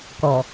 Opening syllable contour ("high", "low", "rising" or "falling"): low